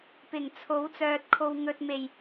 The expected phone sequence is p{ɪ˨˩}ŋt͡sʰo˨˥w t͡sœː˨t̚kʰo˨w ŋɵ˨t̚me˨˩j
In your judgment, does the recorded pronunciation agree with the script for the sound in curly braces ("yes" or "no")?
yes